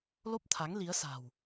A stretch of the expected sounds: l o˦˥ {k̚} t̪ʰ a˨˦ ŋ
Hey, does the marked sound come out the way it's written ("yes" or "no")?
no